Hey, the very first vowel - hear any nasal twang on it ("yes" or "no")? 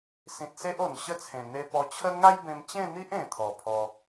yes